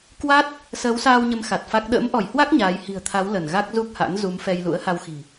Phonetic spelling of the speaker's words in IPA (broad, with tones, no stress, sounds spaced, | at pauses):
k w a˦˥ t̚ | s əː˨˦ w s aː˧ w ɲ ə˨˦ m x a˨˩ t̚ f a˦˥ k̚ ɗ ə̰ː˧˥ m ʔ ɔ˧˩ j h w a˦˥ k̚ ɲ aː˨˦ j h i̤˨˩ ə̯ t̪ʰ a˨˦ w l ə˧˩ n ɣ a˦˥ k̚ z u˦˥ k̚ h a̰˧˥ n z u˨˦ m f ɛ˧ j l ṵ˧˥ ə̯ h a˧ w x i̤˨˩